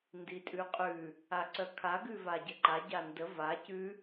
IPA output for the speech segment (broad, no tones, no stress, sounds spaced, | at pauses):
n d i tʼ ʉ qʼ ʉ | a ǀ œ kʰ a ɡ ʉ v a ɟ ə ǃ a ɟ a n d ə v a c ʉ